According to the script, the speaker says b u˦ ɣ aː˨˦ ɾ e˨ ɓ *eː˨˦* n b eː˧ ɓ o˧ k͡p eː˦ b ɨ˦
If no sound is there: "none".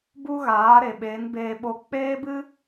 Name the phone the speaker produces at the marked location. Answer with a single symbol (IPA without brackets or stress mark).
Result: eː˨˦